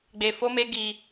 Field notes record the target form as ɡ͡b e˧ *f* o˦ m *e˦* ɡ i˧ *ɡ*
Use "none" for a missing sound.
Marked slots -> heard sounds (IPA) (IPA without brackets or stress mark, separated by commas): f, e˦, none